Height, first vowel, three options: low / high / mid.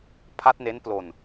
low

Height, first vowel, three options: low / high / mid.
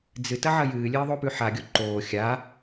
high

